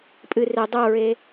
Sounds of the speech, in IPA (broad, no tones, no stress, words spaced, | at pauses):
pʼɨ re dˤoɹe